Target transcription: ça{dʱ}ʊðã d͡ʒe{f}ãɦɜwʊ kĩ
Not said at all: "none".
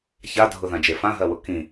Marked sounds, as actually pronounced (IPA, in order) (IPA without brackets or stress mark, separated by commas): dʱ, f